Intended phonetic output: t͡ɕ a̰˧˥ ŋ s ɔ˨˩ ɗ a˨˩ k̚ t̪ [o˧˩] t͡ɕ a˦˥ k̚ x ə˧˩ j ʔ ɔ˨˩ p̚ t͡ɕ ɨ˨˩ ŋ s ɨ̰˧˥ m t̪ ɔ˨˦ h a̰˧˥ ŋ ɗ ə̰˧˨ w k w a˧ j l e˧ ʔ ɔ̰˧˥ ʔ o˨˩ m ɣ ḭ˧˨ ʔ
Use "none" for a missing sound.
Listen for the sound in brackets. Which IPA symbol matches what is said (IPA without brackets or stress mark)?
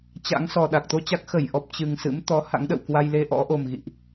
o˧